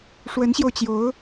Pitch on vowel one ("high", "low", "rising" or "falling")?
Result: rising